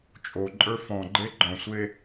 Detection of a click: present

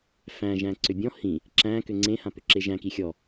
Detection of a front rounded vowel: present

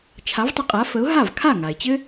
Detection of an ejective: present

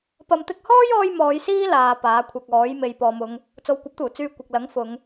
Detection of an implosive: absent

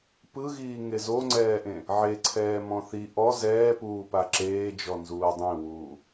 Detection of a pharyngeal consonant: present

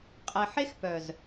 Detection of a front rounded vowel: present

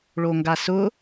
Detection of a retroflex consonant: present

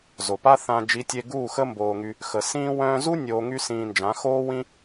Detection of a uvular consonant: absent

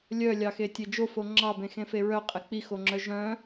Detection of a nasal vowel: present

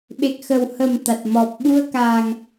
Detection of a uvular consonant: absent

